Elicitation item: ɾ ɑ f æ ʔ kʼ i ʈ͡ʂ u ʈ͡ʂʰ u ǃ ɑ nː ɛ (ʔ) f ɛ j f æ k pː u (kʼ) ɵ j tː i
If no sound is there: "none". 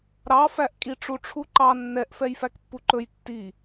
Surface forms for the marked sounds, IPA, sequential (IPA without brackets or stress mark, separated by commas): ʔ, ǃ